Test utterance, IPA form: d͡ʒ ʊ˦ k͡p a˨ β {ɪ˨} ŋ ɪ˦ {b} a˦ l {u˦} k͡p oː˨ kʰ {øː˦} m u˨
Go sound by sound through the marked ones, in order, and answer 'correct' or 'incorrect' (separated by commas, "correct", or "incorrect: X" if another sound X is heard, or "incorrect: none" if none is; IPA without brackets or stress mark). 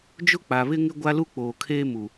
incorrect: ɪ˦, incorrect: ɡʷ, correct, incorrect: eː˦